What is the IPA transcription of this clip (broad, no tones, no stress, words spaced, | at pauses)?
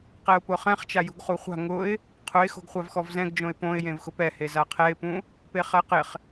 qɛʊ̯pʊχɛ̃χ t͡ʃajṳɡχuχʷa̤ ŋʊɪ̯ | qʰʊɪ̯ xo̤ɡχʷavxɔvzɛ̃ɡ d͡ʒõɪ̯põɪ̯ jẽvxʊpɛhe zaqʰɛɪ̯pũ | peχɛqɪχ